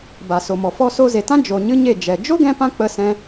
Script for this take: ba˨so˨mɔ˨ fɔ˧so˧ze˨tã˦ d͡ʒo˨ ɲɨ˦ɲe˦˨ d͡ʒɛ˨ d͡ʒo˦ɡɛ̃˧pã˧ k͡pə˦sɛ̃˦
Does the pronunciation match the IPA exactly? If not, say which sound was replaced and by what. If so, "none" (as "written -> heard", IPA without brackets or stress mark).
none